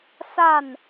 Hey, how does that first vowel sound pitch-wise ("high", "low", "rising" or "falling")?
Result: falling